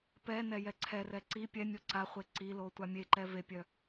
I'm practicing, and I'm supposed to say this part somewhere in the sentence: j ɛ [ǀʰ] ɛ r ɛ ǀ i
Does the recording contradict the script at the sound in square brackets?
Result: no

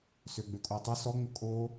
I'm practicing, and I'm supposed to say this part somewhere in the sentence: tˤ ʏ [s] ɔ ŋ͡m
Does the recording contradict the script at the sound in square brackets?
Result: no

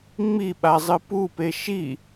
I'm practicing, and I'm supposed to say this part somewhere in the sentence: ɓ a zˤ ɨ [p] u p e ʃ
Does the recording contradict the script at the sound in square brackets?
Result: no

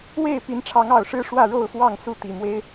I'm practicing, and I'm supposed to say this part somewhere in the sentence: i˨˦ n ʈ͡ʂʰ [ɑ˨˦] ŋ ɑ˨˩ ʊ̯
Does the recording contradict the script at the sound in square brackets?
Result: no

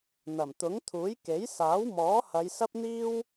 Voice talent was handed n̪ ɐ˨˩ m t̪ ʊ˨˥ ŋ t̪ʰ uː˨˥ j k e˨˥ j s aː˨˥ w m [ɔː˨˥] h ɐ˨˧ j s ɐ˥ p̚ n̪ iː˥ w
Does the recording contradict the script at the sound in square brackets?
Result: no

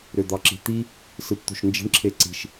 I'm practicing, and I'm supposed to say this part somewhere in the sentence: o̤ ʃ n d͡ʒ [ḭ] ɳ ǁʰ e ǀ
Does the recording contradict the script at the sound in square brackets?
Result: yes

